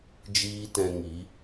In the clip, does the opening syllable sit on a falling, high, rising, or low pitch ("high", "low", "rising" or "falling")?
high